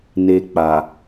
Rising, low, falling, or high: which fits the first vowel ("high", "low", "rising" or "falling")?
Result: low